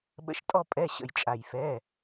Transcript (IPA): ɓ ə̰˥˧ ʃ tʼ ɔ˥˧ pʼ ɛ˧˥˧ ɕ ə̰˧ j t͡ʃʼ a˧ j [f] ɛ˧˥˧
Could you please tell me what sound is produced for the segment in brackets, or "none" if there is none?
f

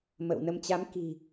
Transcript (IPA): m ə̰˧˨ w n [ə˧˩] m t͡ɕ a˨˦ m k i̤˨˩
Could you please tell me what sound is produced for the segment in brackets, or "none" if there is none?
ə˧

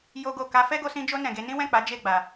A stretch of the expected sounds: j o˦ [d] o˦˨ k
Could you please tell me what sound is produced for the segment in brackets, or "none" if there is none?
ɡ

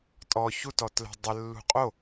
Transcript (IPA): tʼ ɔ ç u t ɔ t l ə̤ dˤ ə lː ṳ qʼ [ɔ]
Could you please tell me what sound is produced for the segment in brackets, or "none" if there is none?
o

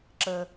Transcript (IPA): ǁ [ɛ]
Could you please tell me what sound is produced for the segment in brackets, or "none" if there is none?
ə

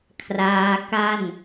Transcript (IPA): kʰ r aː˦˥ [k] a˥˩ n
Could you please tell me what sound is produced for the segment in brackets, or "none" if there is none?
k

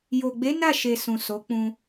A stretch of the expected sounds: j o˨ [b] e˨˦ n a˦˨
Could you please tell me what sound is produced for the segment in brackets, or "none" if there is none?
ɡ͡b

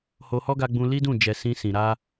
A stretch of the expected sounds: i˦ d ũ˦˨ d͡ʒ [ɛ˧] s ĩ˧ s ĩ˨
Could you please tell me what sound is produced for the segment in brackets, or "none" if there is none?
ɛ˨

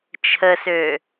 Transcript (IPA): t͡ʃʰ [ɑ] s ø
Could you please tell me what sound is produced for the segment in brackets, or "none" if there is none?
ə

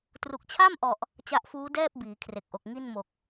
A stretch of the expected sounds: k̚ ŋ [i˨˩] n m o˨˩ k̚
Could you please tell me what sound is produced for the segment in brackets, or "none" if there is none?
i˥˩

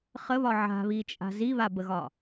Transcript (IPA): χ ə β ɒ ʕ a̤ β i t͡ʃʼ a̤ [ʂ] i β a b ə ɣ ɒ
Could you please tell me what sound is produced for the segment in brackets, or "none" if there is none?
z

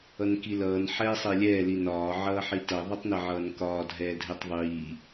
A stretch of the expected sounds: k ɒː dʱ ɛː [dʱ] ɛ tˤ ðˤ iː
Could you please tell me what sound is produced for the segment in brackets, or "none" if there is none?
dʱ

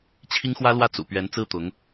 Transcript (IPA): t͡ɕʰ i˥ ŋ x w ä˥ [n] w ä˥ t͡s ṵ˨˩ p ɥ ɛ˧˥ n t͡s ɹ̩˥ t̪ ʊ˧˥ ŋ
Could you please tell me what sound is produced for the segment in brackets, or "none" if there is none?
l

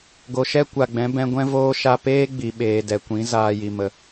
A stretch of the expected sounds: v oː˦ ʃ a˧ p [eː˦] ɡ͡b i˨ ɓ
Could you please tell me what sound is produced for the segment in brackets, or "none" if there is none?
eː˦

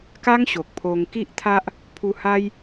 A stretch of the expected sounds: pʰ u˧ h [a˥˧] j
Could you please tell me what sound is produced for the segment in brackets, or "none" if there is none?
a˦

